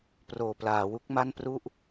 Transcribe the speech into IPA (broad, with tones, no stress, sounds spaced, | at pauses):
p r oː˨˩ p l aː˩˦ w u˦˥ k̚ m a˥˩ n p r u˥˩ ʔ